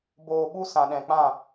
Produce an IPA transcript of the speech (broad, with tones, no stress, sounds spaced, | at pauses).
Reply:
b oː˨ ɓ u˧ s ã˨ ɗ ɛ̃˨ k͡p ã˦˨